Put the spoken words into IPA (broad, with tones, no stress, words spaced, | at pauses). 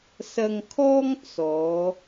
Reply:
sɐ˧ŋkʰɔː˥ŋ t͡sɔː˨˧